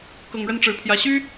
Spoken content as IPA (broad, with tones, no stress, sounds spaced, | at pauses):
k ɤ˨˩ ŋ ɻ ə˥˩ n ʈ͡ʂ ɻ̩˨˩ pʰ j ä˧˥ ɕ y˥